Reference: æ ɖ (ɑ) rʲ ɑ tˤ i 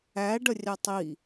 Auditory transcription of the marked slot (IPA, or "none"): ə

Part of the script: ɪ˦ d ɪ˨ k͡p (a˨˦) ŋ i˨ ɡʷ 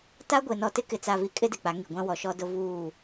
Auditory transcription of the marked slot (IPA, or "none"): a˨˦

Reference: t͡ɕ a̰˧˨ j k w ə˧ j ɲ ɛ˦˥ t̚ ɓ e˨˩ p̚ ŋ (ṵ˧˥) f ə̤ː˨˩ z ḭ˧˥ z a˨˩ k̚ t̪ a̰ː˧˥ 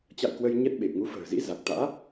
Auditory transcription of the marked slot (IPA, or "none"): u˨˦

